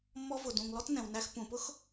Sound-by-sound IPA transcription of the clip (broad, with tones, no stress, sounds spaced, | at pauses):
mː ɔ˧ v ʊ˨ d ũ˨ ŋ l ɔ˦ t n ɛ̃˨ w n æ˧ x p ũ˨ p ʊ˦ x